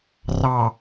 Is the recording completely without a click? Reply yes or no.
yes